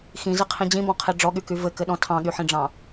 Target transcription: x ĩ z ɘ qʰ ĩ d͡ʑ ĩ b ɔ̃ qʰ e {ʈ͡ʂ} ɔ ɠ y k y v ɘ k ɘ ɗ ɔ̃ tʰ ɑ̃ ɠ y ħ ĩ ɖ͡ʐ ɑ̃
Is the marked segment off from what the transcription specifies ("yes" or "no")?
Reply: yes